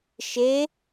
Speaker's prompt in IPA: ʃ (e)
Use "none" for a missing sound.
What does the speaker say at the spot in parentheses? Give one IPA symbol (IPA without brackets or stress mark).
e